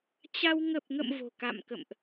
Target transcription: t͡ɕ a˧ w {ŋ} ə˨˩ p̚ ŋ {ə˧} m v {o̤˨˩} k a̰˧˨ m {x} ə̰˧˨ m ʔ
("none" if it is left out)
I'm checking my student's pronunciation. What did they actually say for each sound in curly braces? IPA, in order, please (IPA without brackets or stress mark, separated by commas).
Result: ŋ, ə̰˧˨, o̤˨˩, k